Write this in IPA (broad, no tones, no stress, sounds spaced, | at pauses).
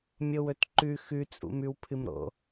mʲ o w ɵ t ǃ ʉ x ʉ t͡sʼ ṵ m ʉ w pʰ ɨ m ɾ o̰